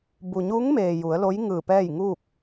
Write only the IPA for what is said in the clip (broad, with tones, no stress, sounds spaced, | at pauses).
b u˩ ɲ u˧˥ ŋ m eː˩ j u˩˧ ə̯ l o˧˥ j ŋ ɯː˧˩ p ɛː˥˨ j ŋ uː˥˨ k̚